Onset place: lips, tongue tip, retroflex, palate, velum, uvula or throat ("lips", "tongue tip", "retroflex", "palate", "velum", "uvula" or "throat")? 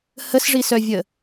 throat